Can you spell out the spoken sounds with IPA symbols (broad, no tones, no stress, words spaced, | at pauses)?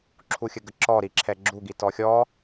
ǁʰuxʲəɡəǁɔ ɾiǁʰɛɡ͡ǁuɡi tɔxʲɔ